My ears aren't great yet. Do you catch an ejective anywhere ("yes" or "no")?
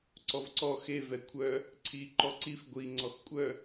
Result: yes